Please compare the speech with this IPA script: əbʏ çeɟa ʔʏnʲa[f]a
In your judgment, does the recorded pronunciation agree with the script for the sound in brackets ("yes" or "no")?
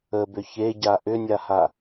no